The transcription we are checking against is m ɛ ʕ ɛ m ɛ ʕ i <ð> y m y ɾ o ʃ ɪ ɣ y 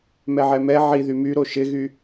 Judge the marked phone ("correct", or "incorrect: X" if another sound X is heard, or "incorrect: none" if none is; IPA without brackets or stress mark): correct